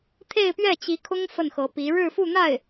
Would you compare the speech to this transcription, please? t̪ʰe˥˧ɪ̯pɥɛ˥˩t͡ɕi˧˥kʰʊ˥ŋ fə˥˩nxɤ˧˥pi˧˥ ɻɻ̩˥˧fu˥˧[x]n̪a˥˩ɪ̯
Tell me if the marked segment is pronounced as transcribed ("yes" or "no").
no